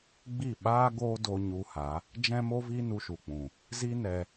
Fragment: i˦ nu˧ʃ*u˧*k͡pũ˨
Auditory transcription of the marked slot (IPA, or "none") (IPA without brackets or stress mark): u˨